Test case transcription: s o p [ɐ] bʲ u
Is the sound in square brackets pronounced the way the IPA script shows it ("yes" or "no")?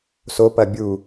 yes